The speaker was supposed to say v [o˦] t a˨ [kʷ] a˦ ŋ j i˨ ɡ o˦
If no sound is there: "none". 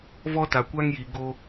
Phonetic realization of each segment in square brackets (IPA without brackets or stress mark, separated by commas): ɔ˦, kʷ